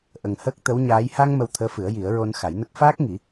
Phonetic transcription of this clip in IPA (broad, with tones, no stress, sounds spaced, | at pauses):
ʔ ə˨˩ ŋ h əː˦˥ k̚ t̪ ə˧˥ w ɲ aː˧˥ j h a˧ ŋ m ə˧ w t̪ʰ əː˧˥ f ɨ˨˩˦ ə̯ j i˨˩˦ ə̯ ɹ o˧ n x a˨˩˦ j n ə˦˥ k̚ f aː˦˥ k̚ ŋ i˨˩˦